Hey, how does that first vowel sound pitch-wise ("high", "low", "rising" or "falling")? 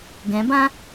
rising